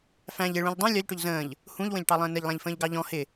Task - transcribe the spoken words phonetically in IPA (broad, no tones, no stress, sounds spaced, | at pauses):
f æ̃ ʎ ɪ ɭ ũ ʎ dˤ ũ lʲ ɒ ʎ ʈ ʊ ʎ z ə̃ː ʎ | h ũ ʎ w ə̃ ʎ ʈ ɑ lˠ ə̃ː n ɪ ʎ lˠ æ̃ ʎ f ə̃ː ʎ ɡ ɑ ʎ ɔ̃ h ɪ